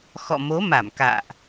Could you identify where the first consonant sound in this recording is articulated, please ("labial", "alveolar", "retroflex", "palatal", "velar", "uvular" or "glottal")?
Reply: velar